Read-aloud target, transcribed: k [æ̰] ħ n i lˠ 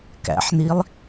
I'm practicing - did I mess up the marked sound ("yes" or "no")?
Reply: no